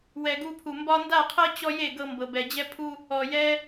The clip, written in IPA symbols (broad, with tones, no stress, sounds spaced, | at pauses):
w ɛ˨ ɡ u˧ pʰ u˨ m b ɒ˧ n d a˦˨ qʰ ɤ˦ t͡ɕ ɔ˦ j e˦˨ ɡ ɤ˦ m b ɤ˧ b ɛ˧ d͡ʑ ɛ˦ pʰ u˦ | ɔ˨ j ɛ˧